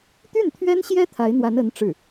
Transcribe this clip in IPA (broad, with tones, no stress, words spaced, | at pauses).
t̪y˥˩nt̪ʰɥɛ˥nɕjɛ˥ t̪ʰa˧˥ɪ̯n̪wa˧˥n ə˧˥n ʈ͡ʂɻ̩˥˩